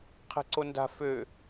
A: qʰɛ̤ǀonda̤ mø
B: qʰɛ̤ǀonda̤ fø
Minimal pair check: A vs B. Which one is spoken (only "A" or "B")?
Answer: B